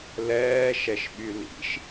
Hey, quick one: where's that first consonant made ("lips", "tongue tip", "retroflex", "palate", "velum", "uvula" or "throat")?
tongue tip